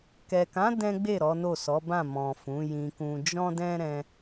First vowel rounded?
no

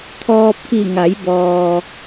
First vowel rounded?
yes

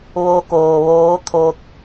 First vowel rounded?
yes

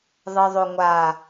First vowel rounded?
no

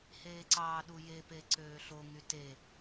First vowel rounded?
no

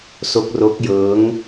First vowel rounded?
yes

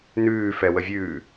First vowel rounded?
yes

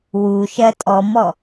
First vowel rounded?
yes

